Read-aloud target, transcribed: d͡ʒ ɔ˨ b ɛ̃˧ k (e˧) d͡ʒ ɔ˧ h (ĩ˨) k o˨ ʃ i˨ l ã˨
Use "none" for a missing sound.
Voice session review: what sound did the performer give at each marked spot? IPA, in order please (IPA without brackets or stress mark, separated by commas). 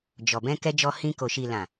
ɛ˧, ĩ˧